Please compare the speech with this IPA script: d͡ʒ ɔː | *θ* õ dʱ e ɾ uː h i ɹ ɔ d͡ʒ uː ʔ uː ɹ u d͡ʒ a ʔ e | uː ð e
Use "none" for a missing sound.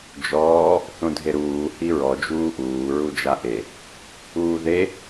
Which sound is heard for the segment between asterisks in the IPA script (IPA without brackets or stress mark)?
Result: θ